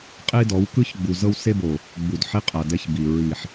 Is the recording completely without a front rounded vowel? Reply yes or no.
yes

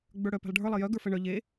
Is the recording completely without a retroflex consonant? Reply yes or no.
no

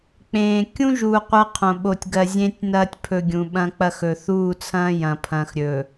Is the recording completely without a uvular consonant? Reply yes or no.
no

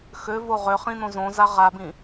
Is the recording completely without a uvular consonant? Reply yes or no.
no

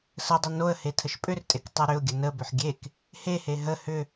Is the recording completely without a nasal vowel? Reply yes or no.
yes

